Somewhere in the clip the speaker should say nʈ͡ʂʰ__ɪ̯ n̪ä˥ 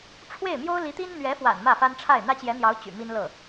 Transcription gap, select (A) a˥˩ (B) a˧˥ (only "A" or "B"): A